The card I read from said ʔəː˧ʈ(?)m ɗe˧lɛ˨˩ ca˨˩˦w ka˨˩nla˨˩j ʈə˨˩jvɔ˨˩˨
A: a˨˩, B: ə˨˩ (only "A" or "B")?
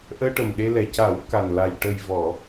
B